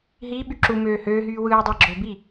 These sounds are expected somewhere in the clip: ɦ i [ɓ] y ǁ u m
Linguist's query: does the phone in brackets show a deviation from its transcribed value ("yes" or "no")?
no